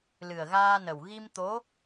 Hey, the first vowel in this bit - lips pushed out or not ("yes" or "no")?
no